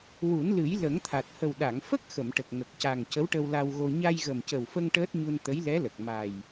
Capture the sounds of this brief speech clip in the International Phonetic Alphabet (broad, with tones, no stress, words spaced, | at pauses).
wu˨˩˦nlɨ˨˩˦j lə˨˩˦ŋt̪ʰa˨˩t̚ hə˨˩wɗa˨˩˨ŋ fə˦˥k̚ xə˨˩˨mʈə˨˩k̚ ŋə˨˩k̚ca˨˩ŋ cə˧˥wʈə˧wla˧wɣo˧ ɲa˧jɣə˨˩mcə˨˩wfə˧ŋ ʈəː˦˥t̚ɲu˧n t̪ə˧˥jlɛ˧˥lə˨˩k̚ ma˨˩j